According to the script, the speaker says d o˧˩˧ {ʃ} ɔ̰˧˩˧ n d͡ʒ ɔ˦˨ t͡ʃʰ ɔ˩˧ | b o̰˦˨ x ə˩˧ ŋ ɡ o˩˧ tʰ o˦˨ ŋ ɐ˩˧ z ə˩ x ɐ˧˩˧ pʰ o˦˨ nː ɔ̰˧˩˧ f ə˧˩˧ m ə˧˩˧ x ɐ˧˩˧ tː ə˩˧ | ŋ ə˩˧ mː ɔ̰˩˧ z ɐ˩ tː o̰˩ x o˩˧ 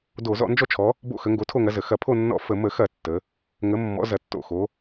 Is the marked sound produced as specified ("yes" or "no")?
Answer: no